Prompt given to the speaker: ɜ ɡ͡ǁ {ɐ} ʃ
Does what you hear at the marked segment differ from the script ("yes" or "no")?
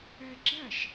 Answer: no